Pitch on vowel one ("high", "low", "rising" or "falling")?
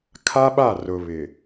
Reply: high